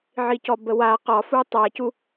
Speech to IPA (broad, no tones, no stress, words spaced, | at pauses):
ʕicɔbəwa qɒfu tˤacu